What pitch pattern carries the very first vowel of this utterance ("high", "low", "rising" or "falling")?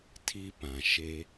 high